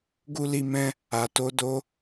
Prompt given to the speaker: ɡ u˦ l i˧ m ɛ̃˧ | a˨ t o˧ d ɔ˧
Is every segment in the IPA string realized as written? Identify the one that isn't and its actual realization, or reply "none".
ɔ˧ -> o˧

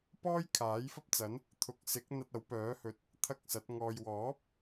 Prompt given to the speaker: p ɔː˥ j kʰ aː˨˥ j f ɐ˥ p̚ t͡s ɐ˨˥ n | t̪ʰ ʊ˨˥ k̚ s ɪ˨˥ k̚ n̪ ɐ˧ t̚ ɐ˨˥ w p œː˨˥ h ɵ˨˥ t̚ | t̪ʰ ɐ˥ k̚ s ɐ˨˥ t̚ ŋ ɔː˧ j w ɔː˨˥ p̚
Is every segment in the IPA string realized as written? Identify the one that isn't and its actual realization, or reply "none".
none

